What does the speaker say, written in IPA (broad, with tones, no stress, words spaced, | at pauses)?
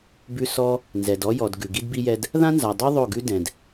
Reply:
bʉ˦ sɔ˦ | nzɛ˨d ɔ˦jɔ˨d ɡʉ˨ɡi˦dbi˦jɛ˦d | ðã˦nza˨dˤo˦ ðˤo˦˨ɡʉ˦ dɛ̃˨d